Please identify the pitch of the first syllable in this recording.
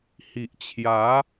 low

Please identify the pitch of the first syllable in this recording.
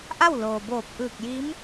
falling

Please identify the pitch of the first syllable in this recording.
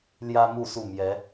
high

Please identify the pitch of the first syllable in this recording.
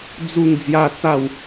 falling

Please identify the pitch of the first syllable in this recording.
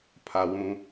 high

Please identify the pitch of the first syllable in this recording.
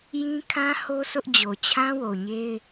high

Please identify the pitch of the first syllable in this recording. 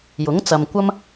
rising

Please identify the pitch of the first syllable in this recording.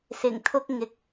low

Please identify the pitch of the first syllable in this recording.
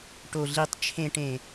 low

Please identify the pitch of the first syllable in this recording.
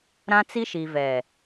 high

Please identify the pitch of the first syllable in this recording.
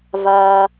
high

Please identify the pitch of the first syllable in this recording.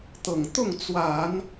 low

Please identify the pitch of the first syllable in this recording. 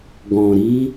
low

